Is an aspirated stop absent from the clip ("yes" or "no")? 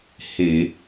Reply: yes